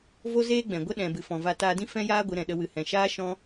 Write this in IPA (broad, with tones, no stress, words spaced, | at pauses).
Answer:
vo˦zeː˦ɡ͡bɛ̃˨ ɡʷə˦ɗɛ̃˨ bɨ˨fɔ̃˨va˧ taː˧dĩ˦ fɛ̃˦jaː˦ ɡʷɨ˨˦ɾɛ̃˨ɗə˧ wɨ˨ hɛ̃˨ʃaː˦ ʃɔ̃˦